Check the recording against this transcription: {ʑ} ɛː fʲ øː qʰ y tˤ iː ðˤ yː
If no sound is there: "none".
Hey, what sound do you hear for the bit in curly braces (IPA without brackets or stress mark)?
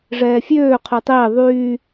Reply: ʐ